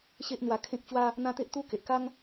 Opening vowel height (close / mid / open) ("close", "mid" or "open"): mid